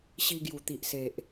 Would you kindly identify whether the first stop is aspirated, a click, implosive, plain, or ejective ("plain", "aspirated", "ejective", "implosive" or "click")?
plain